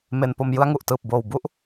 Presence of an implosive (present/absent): absent